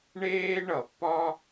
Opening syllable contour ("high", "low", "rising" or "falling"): high